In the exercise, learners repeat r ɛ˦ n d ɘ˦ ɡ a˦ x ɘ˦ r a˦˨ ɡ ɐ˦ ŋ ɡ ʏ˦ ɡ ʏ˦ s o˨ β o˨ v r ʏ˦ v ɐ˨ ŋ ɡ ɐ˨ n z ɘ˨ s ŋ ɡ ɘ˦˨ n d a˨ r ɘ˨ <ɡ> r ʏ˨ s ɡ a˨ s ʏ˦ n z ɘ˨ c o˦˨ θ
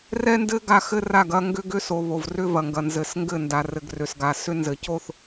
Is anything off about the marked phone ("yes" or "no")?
no